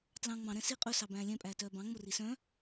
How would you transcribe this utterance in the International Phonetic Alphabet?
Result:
t l ɑ̃ ŋ͡m ɑ̃ ɾ ɛ̃ s i qʼ ɵ s ɑ b æ̃ː lʲ ɛ̃ pʼ æː t œː b ɑ̃ ŋ͡m o r i s œ̃

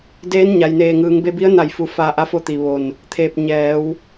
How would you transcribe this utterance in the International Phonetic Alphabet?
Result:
d eː˧˥ n ɲ a˩ j n eː˧˩ ŋ ɯː˩˧ ŋ b e˧ b i˧˥ ə̯ n a˧˩ j f u˧˩ f a˧ ʔ a˧˥ f o˧ t̪ i˩ ʋ o˧˩ n | t̪ʰ eː˧˩ p̚ ɲ ɛː˩˧ w

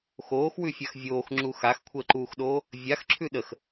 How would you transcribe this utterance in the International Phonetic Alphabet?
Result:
x oː x w ʉ fʲ a x vʲ oː x ŋ͡ǁ u x a x kʷʰ əː ǃ uː x ɗ oː | vʲ a x ǁʰ ʉ ɗ ə x

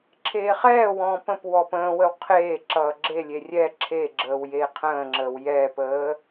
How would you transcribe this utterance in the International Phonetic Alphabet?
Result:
ǁʰ eː χ ɛː w ɔ̃ː p ə̃ p w ɔ p ə̃ː w ə w qʰ eː ǁ ʌː ɡ͡ǁ e lʲ e rʲ ɛ ǁʰ e ɡ͡ǁ əː w j eː qʰ ə̃ː ŋ͡ǁ əː w j ɛː p əː

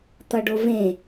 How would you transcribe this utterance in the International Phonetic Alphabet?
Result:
t̪ ʌ ɖ o v ẽ

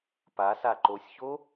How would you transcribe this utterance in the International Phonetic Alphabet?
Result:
p a s a ǃ o sʲ ç o

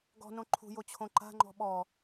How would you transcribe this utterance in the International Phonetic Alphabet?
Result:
ɡ ɔ̤ n õ ǃʰ ṳ j o t͡ɕʰ õ ǃ a̤ ŋ͡ǃ ɔ̤ ɓ ɔ

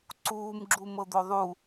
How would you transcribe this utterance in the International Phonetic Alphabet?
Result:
ǀ uː m ɡ͡ǁ u m ɤ d̪ o ðˤ u

